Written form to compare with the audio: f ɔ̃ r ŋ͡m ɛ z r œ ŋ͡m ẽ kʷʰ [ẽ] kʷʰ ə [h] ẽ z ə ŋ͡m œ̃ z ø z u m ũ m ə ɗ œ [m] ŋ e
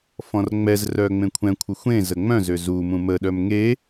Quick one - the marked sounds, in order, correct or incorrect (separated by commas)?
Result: incorrect, incorrect, correct